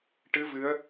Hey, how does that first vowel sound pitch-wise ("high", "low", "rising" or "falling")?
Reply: rising